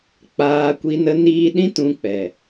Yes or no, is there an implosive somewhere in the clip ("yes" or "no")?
yes